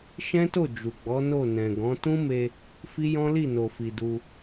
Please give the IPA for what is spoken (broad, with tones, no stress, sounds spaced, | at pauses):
ʃ ɛ̃˦ t o˦˨ d͡ʒ u˨ ɡ͡b ɔ˨˦ n o˦˨ n ɛ̃˨ ɡ ɔ̃˨˦ t ũ˦ m e˧ | f i˦ j ɔ̃˦ l i˦˨ n o˨ f i˨ d u˧